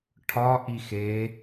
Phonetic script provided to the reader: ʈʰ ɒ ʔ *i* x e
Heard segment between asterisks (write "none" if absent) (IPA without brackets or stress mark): i